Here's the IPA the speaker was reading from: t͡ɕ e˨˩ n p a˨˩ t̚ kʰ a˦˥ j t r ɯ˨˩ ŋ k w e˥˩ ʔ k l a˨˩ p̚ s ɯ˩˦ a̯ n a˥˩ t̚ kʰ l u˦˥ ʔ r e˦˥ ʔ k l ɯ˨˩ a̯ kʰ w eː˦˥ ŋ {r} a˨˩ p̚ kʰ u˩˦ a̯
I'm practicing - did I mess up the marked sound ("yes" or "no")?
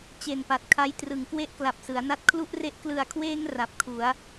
no